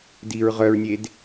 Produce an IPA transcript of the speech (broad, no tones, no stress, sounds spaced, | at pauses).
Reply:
d i ɹ ʁ œ ɹ nʲ e d